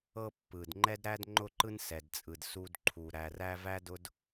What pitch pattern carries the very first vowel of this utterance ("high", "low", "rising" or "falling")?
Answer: high